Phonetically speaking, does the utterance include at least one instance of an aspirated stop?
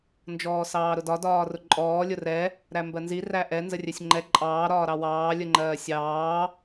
no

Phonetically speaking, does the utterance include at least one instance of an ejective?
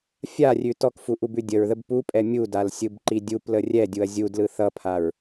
yes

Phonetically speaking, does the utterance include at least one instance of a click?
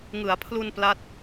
no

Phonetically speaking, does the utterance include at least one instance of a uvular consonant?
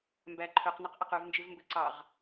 yes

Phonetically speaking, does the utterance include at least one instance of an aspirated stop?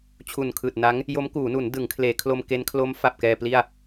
yes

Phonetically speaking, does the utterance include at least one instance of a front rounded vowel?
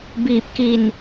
no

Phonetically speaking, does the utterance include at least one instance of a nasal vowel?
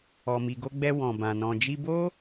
yes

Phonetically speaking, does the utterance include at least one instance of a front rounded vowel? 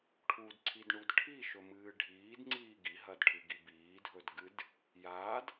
no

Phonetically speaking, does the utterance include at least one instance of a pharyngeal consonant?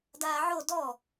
yes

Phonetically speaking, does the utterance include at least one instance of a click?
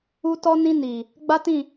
no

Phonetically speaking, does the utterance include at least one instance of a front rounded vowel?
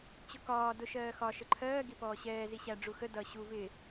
no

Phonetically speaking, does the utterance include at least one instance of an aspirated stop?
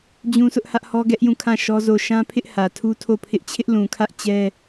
yes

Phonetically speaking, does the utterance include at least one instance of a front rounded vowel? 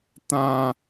no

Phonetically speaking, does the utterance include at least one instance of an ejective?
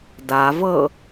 no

